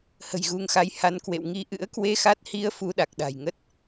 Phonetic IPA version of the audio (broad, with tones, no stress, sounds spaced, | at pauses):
h ə̤˨˩ j ɣ u˨˦ ŋ x a˨˦ j h a˧ n k w ḛ˧˨ w ŋ i˧ ʔ ɨ̰˧˥ ə̯ k w e˧ x a˦˥ t̚ h i˧ ə̯ f u˧ ɗ a˨˩ k̚ ɗ a̤˨˩ j ŋ ə˦˥ t̚